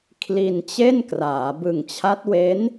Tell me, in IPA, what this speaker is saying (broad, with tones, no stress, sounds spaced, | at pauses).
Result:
kʰ l i˧ n t͡ɕ e˥˩ n k r aː˩˦ b ɯ˨˩ ŋ t͡ɕʰ a˦˥ t̚ w e˦˥ n